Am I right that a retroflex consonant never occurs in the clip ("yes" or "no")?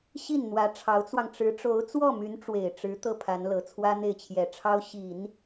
no